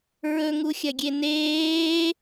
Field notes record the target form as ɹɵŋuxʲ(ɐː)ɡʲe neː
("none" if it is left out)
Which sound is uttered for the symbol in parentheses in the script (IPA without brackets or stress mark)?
ɐ